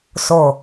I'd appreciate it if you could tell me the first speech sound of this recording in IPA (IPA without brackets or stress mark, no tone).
s